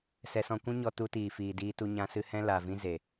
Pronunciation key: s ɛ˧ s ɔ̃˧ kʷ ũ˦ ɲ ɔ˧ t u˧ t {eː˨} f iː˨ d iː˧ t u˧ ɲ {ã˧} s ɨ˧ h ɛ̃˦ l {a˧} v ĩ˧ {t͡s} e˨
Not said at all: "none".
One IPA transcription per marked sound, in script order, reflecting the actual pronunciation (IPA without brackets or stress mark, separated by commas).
iː˨, ã˧, a˨, z